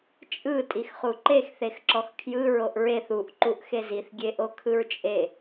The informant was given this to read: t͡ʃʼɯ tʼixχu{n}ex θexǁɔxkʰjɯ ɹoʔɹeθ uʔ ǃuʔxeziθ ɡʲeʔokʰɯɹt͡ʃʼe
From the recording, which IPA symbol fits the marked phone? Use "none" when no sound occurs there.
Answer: ǃ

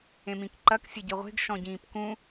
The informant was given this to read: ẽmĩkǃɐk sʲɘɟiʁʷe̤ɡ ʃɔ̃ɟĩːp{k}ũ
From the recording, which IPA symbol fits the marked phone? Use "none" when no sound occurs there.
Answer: k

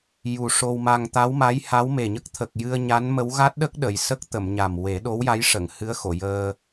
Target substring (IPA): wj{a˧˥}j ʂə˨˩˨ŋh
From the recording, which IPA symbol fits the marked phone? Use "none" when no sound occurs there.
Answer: a˧˥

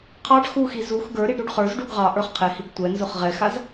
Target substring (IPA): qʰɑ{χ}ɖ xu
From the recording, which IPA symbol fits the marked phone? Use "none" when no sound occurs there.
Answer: none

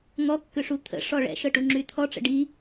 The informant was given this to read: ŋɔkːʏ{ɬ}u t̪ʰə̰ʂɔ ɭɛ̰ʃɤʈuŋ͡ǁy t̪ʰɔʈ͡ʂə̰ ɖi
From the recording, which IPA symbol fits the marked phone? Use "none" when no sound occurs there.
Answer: ʂ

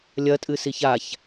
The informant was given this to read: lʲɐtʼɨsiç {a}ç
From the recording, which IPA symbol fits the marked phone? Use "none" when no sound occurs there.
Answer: a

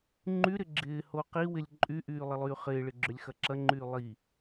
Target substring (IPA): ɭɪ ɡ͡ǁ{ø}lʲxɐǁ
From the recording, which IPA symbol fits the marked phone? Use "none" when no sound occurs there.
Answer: ø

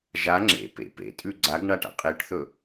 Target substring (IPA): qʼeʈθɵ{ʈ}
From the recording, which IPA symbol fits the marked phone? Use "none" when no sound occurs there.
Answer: none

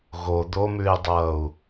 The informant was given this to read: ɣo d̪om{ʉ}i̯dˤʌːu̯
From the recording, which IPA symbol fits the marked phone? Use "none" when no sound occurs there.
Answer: ʉ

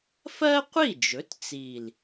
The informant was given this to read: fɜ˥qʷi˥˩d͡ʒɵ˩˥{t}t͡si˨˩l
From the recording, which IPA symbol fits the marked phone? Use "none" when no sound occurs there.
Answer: t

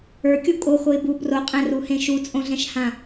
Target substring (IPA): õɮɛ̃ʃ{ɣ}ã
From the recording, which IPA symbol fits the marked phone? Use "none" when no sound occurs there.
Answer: h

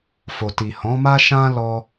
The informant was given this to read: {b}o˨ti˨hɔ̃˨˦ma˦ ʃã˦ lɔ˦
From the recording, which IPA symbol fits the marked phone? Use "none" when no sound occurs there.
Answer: f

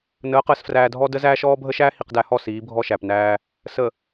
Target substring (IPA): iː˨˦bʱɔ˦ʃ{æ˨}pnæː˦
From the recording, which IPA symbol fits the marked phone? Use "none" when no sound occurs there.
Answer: æ˨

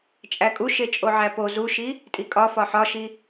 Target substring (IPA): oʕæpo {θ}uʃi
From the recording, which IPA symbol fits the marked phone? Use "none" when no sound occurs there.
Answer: z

